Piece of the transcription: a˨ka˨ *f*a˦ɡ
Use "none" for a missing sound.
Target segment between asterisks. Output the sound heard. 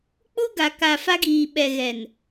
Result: f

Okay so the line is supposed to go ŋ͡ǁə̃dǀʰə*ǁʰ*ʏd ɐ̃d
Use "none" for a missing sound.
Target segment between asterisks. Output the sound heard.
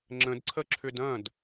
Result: ǁʰ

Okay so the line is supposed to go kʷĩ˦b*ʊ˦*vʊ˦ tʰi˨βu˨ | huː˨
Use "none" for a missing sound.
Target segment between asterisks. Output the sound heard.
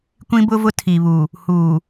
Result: ʊ˦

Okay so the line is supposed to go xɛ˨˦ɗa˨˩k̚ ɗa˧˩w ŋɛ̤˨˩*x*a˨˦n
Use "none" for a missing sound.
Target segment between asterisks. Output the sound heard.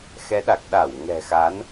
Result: x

